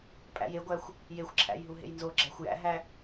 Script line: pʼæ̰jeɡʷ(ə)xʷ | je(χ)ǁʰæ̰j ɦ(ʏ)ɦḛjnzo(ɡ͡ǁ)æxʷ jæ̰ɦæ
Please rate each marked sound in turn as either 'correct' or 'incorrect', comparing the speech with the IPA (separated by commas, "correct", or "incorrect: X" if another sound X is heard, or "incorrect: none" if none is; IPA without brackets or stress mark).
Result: incorrect: æ, incorrect: xʷ, incorrect: u, correct